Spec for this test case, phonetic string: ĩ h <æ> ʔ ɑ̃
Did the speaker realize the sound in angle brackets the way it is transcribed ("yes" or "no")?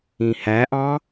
yes